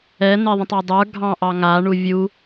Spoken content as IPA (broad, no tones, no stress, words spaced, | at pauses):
ɛn̪e ðˤə̃tˤɑdˤə˞ ɡʱɑ̃ʔɑ ŋa ɳuvʲu